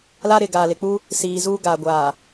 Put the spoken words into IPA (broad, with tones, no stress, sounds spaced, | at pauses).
l a˦ ɾ ɪ˨ ɡ aː˨ l ɪ˨ k͡p u˦ | s iː˨ z uː˦ ɡ aː˨ ɡʷ aː˨